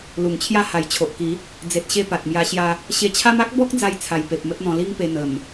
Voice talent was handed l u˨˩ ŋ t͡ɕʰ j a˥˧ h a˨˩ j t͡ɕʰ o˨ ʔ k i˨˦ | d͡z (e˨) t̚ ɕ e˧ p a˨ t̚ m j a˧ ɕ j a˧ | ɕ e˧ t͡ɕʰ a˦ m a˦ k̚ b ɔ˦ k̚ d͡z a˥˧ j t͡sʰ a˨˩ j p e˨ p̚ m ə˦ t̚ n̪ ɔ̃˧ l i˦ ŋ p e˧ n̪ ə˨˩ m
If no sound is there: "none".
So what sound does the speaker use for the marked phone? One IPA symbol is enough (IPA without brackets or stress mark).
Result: e˨